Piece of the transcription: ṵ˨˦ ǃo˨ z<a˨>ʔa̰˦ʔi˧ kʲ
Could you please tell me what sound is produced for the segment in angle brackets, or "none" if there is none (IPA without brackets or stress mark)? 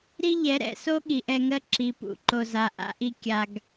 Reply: a˨